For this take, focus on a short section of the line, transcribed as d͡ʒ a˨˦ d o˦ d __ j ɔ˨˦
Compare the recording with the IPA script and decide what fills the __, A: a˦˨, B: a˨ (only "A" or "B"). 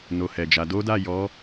A